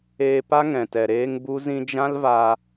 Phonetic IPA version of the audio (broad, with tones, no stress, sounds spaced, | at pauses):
eː˧ p a˦ ŋ ɛ̃˨ t ɛ˨ ɾ eː˦ ŋ b u˦ z ĩ˦ d͡ʒ ã˦ l v a˧